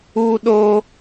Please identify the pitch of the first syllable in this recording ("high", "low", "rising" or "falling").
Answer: low